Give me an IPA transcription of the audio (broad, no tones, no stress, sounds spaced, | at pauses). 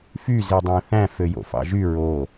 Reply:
f y z i dˤ æ̃ θ æ̃ f ø j o̰ f ɑ̰ ʒ y ɹ o